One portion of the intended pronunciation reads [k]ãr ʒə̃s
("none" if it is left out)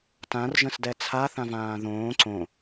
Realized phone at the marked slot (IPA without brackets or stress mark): t